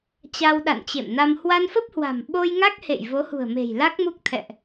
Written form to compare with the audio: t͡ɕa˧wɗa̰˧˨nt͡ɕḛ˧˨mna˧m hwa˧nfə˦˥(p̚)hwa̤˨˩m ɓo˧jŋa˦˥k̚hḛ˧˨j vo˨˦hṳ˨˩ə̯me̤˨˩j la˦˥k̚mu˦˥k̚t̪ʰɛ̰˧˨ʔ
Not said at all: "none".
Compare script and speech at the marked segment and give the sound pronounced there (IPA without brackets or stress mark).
p̚